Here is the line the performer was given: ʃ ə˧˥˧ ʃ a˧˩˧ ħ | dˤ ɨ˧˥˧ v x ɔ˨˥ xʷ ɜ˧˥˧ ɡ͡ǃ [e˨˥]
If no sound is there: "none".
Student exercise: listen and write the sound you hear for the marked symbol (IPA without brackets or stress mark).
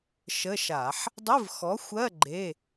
e˧˥˧